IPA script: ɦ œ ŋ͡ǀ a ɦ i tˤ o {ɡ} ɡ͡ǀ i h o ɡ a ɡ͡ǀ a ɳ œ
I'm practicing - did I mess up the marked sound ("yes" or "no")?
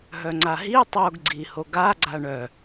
no